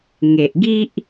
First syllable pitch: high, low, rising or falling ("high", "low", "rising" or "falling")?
low